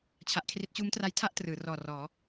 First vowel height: low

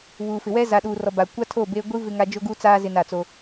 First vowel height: high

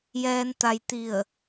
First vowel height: mid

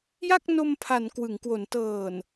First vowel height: low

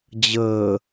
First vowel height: mid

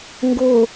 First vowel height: mid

